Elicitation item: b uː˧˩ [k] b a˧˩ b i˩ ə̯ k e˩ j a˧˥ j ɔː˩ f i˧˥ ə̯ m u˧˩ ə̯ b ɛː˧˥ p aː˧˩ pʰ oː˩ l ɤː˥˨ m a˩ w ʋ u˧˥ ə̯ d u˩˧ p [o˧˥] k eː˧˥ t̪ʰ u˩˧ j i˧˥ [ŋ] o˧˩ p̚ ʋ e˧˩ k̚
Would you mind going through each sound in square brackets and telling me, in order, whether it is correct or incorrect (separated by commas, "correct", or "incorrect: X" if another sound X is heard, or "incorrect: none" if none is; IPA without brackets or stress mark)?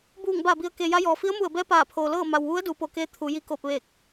incorrect: ŋ, incorrect: o˩, incorrect: k